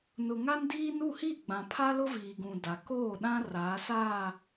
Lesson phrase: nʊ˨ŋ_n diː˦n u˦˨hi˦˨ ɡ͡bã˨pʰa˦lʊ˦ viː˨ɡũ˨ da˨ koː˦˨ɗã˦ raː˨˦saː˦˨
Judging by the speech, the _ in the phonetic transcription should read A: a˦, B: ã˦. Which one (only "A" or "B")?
A